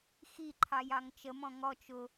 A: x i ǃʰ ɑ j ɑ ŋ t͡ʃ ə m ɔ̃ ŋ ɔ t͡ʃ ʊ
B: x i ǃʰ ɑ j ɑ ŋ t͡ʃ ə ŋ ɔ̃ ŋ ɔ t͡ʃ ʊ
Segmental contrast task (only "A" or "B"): A